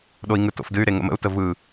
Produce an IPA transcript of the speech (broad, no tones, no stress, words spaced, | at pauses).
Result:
ɗoi̯ŋɯto̰fdɨy̯ ɾeŋə̰mə̰u̯tə vɯ